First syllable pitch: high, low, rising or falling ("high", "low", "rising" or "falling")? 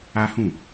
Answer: high